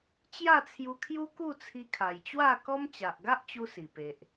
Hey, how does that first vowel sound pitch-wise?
falling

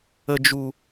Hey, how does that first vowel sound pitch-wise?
low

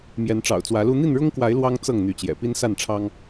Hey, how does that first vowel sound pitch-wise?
rising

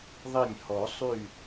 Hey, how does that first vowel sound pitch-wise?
falling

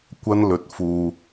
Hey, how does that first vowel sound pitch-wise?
high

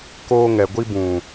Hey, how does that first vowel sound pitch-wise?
high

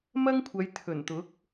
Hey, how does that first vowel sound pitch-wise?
high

